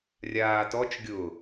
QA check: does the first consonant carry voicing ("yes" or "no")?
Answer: yes